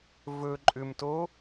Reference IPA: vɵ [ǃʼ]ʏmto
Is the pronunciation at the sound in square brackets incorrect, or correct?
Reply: correct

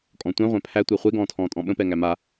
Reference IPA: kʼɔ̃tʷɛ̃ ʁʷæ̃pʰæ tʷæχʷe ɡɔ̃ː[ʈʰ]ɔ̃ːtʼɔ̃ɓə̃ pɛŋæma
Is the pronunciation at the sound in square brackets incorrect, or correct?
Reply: incorrect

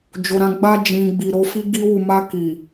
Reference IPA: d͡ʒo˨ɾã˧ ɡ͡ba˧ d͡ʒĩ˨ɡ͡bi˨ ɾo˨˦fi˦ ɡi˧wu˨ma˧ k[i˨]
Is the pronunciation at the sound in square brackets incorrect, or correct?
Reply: correct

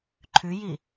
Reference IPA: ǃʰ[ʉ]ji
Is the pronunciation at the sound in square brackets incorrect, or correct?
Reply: correct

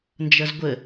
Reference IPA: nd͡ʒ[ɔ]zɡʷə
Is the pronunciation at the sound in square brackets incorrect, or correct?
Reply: incorrect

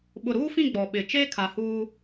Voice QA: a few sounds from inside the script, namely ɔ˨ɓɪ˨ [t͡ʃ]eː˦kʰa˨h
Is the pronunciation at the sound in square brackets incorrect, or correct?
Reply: correct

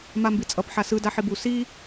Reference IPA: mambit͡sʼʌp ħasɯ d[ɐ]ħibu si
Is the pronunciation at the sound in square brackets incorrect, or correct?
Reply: incorrect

